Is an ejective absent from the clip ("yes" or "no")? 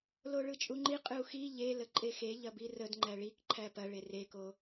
no